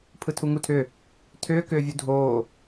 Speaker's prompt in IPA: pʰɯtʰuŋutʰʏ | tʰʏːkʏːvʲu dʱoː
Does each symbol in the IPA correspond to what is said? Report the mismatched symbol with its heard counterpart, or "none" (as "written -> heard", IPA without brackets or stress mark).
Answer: none